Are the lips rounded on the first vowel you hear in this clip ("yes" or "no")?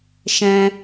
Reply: no